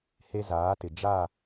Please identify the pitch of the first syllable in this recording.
high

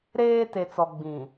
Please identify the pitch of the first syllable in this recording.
high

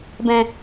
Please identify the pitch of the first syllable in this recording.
low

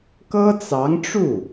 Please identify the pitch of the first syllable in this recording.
high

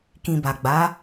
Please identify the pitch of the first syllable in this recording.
low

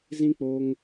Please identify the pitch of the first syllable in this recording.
high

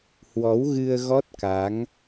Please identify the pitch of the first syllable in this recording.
rising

